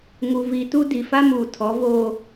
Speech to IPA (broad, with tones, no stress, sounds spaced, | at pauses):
ŋ u˨ v i˨ t u˦ d i˨ f a˦ m uː˨ tʰ ɔ˨˦ v oː˦